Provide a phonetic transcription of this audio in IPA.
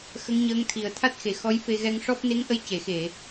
x ə˧˥ ŋ ɲ əː˧˥ ŋ t̪ʰ i˨˩ ə̯ t̪ʰ a˦˥ t̚ x e˨˩ x ɔ˧˥ j f e˧ ɣ ɛ˧ ŋ ʂ ɔ˦˥ p̚ n e˧˥ ŋ ʔ ə˧ j c e˨˩˨ x e˨˩˨

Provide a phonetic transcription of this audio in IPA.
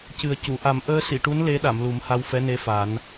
c ɨ˨˩ ə̯ c u˨˩˨ ʔ a˨˩˦ m ʔ əː˧ s i˨˩˨ ʈ u˧˥ n l e˧˥ ɗ a˨˩˨ m l u˨˩˦ m h a˧ w f ɛ˧˥ n e˧ f a˨˩˦ n

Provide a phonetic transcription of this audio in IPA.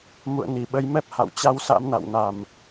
m ṵ˧˨ ə̯ n i˧˩ ɓ ə˨˦ j m ɛ˦˥ p̚ h a̰˧˨ w t͡ɕ a˧ w s a̰˧˥ m n a̰˧˨ w n a˧˩˨ m

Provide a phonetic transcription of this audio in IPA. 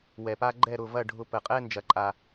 w ɛ˨ p a˦ ɡ͡ǃ ɛ˦˨ ɾ ʊ˦˨ v ɐ˦˨ ɖʱ ʊ˧ p ə˨ qʼ ɛ˦ n d͡ʒ ɐ˨ ǃʼ a˨

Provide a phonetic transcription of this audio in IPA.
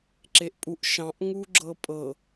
ǁ e ʔ pʼ u ʔ ʃ ɑ̃ ʔ ŋ u ɡ͡ǁ ɤ pʼ ɤ

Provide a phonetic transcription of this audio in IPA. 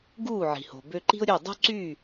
ɡ uː˦˨ ʕ i̤˨ h o̤˨ b ø˧ ǃ i̤˦ ʊ̯ ɾʲ ø˦˨ dˤ o̤˦ ǀ y˦˨

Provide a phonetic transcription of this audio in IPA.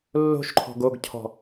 lː o̤ ʃ ǃʰ ɔ̤ ɡ o ɡ cʰ ɔ̤

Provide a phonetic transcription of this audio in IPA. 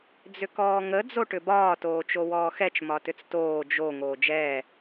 d͡z ʏ k ɔː ŋ ə d͡z o ʈ ʏ b ɒː t oː t͡ʃ o w ɔː x ɛ t͡ʃ m ɒ t ʏ t͡s t oː d͡ʒ o ŋ oː d͡ʒ ɛː

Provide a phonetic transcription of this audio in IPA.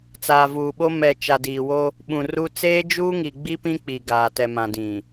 t͡s aː˨ v uː˨ ɓ o˦ m ɛ˨ t͡ʃ a˨ d iː˨ w o˦ | ɓ ũ˨ r u˦ t͡s eː˦ d͡ʒ uː˦ ŋ i˨ ɡ͡b i˦ p ĩ˦ k͡p i˨ ɡ aː˨ t ɛ˨ m ã˨ d ĩ˨

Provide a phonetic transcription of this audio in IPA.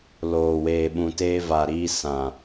l oː˨ w eː˨ ɓ ũ˨ t eː˧ v a˨ ɾ iː˧ s ã˨

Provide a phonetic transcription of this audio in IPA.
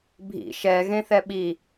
bʱ ḭ ʃ ɛ ɣ ẽ θ ɛ ɓ i

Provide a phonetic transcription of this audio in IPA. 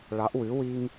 ɭ ɑ˩˥ ʔ w ʉ˩˥ w i˦ ŋ

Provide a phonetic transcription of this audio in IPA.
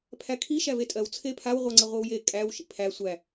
pʰ æ kʰ i ʃ æ v e tʼ ɜ w t͡sʰ e pʰ a w ʁʷ ɜ ŋ͡ǀ ə ʁʷ i w j e kʼ æ w ʃ ḭ pʰ æ sʷ æ

